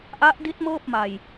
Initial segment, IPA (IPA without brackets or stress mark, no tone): ʔ